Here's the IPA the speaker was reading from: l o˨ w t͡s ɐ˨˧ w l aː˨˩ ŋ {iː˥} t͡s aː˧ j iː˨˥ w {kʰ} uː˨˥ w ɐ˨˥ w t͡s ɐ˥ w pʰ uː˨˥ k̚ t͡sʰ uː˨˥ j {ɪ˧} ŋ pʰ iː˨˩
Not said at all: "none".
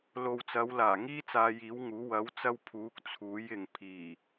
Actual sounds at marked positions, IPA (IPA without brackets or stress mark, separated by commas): iː˥, ŋ, ɪ˨